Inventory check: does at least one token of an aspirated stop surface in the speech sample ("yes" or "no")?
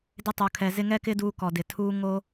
yes